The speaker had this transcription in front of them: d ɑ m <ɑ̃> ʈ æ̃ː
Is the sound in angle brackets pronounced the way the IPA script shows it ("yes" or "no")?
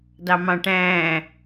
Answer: yes